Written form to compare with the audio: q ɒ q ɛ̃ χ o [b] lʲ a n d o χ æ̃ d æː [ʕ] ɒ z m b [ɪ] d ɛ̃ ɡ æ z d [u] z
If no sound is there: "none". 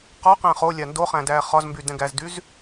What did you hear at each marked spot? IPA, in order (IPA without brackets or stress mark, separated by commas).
none, χ, y, y